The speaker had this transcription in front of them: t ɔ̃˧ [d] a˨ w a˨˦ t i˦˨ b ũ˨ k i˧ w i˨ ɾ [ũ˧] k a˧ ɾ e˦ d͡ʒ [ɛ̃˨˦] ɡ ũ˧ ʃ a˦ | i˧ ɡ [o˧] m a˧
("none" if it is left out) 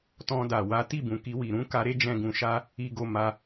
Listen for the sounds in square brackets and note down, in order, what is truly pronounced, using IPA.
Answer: d, ũ˨˦, ɛ̃˧, o˧

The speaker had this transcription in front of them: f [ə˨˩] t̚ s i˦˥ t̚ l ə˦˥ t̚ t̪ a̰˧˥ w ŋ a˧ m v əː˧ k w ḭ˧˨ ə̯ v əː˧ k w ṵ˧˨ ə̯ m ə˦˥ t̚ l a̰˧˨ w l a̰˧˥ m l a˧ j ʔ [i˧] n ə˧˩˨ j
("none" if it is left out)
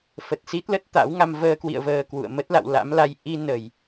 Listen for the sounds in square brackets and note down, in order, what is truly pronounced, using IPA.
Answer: ə˨˩, i˧

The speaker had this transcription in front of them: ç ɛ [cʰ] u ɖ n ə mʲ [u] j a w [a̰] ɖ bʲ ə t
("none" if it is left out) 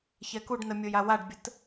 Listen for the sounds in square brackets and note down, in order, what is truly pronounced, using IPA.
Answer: k, o, a

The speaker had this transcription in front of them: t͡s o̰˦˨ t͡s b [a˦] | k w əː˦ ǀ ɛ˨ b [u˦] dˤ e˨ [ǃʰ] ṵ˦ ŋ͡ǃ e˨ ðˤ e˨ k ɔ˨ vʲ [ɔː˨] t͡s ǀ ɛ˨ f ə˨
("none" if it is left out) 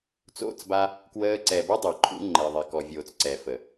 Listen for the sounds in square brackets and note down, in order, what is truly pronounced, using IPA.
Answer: a˦, u˦, ǃʰ, oː˨

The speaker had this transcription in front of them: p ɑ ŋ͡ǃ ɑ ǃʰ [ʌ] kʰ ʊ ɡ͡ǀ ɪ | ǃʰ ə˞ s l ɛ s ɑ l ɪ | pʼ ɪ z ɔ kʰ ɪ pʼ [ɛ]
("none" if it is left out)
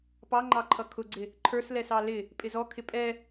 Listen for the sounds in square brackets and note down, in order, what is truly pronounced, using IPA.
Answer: ʌ, ɛ

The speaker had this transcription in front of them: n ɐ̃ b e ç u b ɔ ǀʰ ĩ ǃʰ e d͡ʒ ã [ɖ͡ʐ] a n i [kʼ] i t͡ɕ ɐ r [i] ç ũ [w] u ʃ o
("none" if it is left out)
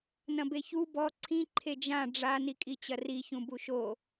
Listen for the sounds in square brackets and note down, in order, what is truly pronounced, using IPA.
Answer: ɖ͡ʐ, kʼ, i, b

